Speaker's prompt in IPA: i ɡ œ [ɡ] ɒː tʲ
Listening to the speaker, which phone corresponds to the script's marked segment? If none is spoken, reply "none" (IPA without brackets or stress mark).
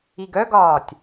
ɡ